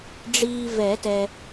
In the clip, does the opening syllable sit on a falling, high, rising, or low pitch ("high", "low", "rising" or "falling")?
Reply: low